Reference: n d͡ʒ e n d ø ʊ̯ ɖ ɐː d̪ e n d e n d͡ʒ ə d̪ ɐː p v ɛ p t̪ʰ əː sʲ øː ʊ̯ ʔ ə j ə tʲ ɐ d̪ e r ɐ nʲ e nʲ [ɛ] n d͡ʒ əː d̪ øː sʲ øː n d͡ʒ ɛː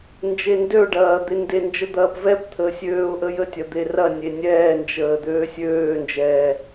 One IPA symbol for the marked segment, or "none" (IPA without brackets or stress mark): ɛː